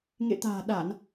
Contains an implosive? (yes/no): yes